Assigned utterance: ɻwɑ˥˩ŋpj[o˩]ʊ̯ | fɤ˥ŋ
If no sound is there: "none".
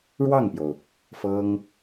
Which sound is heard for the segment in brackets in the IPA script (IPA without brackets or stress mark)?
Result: o˩